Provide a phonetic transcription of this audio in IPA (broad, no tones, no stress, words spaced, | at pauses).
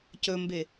cɵmbe